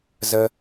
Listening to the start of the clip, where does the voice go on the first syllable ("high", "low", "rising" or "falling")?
high